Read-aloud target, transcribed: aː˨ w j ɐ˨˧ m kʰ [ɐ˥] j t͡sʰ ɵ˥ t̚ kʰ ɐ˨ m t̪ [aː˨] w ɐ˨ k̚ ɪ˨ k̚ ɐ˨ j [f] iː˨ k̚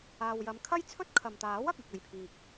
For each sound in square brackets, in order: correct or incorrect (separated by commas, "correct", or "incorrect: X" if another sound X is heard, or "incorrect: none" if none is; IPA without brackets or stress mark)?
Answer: correct, incorrect: aː˨˥, incorrect: pʰ